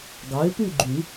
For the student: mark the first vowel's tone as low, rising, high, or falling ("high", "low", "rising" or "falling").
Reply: rising